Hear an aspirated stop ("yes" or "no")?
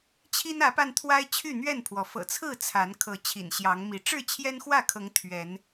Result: yes